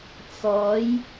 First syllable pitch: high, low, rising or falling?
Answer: rising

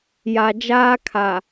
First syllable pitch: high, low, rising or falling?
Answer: low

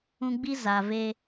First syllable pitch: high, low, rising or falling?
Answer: high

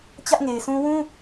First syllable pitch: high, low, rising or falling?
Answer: high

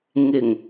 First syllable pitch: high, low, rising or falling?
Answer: low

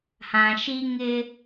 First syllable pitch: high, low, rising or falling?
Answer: low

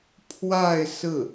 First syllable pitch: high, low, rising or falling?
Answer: falling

